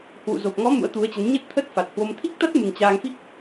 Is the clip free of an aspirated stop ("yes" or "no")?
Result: no